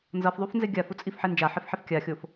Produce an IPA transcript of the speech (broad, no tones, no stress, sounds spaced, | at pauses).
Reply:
n z ʌ f ðˤ u f n z e ɡʲ a f u t͡sʼ i f ħ e n d͡ʒ a ħ i f ħ e f kʲ a xʲ o f